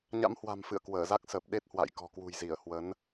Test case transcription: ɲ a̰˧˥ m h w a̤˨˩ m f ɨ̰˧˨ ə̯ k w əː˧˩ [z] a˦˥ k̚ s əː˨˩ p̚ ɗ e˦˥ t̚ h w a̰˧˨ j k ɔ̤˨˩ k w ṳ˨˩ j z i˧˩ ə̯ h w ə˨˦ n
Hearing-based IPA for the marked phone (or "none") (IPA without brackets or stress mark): z